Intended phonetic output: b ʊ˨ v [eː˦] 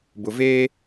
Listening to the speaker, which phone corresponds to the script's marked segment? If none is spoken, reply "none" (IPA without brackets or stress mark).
eː˦